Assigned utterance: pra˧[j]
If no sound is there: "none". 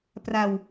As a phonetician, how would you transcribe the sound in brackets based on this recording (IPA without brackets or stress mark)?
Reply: w